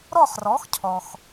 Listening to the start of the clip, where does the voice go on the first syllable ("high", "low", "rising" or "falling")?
falling